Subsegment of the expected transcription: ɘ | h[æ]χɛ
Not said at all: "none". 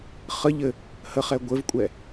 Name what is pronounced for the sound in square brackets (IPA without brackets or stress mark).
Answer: ə